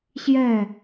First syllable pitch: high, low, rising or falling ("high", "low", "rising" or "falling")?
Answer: falling